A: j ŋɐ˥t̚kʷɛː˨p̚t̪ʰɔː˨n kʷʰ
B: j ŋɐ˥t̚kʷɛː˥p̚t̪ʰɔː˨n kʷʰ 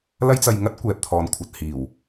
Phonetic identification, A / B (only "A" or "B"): A